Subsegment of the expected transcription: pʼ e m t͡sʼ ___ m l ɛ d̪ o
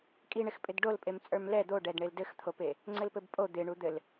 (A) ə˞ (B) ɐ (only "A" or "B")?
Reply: A